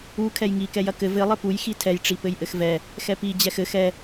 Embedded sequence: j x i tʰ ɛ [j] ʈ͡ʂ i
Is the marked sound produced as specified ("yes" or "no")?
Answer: yes